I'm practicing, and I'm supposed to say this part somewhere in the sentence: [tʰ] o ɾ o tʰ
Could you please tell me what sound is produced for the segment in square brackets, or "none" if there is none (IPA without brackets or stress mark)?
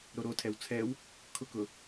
ɾ